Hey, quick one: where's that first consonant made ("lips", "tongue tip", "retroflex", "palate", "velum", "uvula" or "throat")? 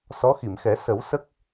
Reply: tongue tip